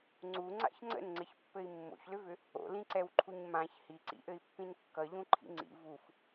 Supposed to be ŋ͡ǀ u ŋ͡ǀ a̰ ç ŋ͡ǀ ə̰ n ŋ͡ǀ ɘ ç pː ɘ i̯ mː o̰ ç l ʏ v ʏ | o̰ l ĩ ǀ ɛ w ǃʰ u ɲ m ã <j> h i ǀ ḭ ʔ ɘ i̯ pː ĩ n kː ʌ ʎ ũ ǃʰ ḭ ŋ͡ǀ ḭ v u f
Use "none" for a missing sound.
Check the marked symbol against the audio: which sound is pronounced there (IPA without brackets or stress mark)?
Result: ç